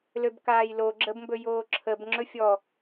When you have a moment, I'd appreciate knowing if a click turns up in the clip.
yes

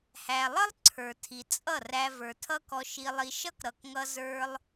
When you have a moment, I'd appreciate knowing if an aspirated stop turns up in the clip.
yes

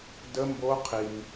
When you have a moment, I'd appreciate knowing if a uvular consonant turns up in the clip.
yes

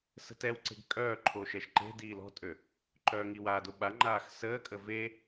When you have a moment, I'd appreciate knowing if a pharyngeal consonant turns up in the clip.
no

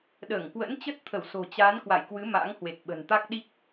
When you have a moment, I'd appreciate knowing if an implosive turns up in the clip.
yes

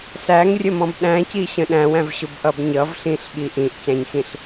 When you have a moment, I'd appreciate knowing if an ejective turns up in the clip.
no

